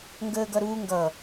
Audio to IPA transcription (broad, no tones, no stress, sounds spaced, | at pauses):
ŋ ɡ əː ɡ ʌ ɾ uː ŋ ɡ ʌ